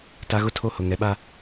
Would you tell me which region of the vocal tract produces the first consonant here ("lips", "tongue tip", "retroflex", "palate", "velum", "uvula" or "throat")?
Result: tongue tip